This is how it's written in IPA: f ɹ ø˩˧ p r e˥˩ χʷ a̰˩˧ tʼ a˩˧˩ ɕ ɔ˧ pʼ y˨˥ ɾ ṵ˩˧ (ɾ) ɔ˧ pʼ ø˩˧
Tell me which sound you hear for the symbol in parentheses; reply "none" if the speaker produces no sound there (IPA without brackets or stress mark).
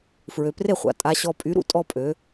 tʼ